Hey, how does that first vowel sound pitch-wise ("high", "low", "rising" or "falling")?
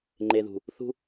low